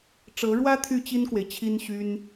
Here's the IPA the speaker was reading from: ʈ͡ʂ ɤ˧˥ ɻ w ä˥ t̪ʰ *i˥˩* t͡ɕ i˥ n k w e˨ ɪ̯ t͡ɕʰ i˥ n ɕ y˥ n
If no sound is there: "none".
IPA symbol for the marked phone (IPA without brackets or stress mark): y˥˩